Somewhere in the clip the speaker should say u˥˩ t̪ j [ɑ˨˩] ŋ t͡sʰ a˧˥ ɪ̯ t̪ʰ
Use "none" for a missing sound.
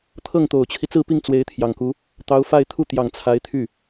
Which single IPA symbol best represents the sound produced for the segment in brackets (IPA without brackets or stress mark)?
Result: ɑ˨˩